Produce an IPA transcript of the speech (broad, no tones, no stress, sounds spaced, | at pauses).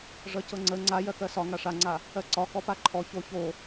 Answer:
ʐ ʌ c ɤ ŋ͡ǀ ə ŋ͡ǀ a j ɜ k ɜ s ɒ ŋ a ʂ a ŋ͡ǀ a | ɜ ǀ ɒ k ɔ p a ǃʰ ɔ ç o ç o